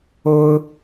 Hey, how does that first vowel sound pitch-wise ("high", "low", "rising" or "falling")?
high